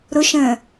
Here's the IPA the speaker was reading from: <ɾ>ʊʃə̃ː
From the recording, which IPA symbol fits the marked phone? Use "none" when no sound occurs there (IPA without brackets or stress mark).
ɾ